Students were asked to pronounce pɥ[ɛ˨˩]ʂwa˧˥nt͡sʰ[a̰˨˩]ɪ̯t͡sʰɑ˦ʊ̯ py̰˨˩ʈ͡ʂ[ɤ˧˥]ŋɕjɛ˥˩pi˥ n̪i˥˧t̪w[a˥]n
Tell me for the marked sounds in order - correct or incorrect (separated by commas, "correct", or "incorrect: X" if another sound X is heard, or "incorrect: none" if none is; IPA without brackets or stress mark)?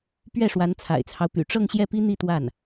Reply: incorrect: ɛ˥˩, correct, incorrect: ɤ˥˧, incorrect: a˥˩